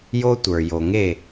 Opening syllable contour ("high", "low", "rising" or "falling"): high